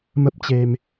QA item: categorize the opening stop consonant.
plain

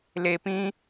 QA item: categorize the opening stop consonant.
plain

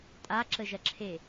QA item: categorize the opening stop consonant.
ejective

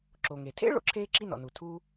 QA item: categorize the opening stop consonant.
click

